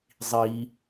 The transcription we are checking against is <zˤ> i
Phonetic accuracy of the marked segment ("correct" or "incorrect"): correct